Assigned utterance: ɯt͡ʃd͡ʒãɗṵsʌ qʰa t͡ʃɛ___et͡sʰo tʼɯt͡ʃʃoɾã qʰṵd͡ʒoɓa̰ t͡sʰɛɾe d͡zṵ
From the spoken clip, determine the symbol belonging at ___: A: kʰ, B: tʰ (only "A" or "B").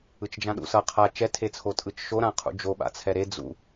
B